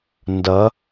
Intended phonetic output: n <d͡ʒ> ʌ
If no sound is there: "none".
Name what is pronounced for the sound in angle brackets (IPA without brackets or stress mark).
d